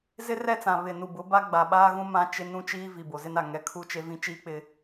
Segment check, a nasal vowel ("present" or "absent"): present